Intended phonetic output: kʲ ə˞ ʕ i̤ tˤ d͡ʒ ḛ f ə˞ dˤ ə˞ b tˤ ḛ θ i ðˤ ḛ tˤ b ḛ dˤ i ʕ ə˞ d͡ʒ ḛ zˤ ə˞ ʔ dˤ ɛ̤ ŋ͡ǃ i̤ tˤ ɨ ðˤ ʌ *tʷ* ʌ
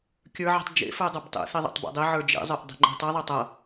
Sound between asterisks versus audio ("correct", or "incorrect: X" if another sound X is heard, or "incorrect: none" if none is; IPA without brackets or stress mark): incorrect: tˤ